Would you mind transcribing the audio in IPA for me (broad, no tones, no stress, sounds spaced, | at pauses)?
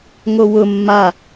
ŋ o w ʊ mː a